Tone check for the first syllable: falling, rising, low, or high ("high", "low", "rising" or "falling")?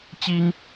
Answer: high